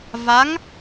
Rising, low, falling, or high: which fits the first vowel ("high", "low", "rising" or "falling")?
rising